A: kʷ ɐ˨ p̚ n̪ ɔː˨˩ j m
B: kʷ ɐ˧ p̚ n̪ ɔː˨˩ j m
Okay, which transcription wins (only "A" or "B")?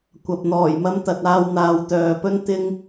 A